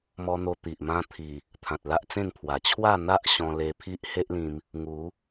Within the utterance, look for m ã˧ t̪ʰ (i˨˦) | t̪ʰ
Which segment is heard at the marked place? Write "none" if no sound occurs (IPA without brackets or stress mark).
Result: i˨˩